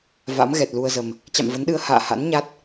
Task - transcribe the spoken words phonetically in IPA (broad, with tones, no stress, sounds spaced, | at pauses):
v a̰˧˥ m ɣ ɛ˨˩ t̚ l u˧ ə̯ z ə˨˩ m | t͡ɕ a̰˧˨ m v ə˨˦ n ɗ ɨ˧ ə̯ h a̰ː˧˨ h a̰˧˥ n ɲ a˦˥ t̚